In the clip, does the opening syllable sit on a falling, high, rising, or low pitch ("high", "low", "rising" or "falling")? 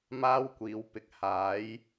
high